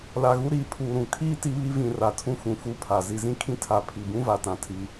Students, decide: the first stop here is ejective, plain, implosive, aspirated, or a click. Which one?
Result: aspirated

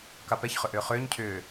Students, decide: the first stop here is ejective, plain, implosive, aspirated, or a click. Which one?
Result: plain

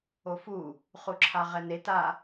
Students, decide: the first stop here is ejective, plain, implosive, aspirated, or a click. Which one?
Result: click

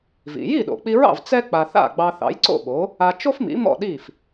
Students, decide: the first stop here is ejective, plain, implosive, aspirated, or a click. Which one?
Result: implosive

